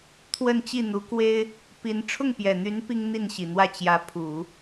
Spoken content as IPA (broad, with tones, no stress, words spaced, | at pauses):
t̪ʰwə˥˧nt͡ɕi˥˩n̪u˧˥ kwe˥ɪ̯ | pi˧˥n ʈ͡ʂʰʊ˥˩ŋpjɛ˨˩n̪y˧˥n pi˥ŋn̪i˥˩nɕi˨˩n̪wä˥˩ t͡ɕjä˧˥pʰu˨˩˦